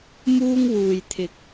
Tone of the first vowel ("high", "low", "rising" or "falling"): high